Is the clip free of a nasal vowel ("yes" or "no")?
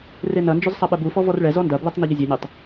yes